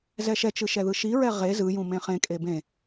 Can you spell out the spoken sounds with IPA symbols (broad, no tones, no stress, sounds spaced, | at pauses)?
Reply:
z ɛ ʃ ɛ t͡ʃ ɯ ʃ ɛ ð ɯ ʃ i ɹ ɛ ʁ e z ɯ j ũ m ẽ χ ẽ kʼ e b ẽ